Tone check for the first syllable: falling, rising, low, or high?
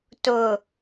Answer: low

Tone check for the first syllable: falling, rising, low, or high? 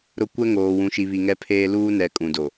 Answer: falling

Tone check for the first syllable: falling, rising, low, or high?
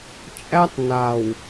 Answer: high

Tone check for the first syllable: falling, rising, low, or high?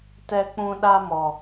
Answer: high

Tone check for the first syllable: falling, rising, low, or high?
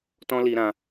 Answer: high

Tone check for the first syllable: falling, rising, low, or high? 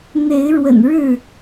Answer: rising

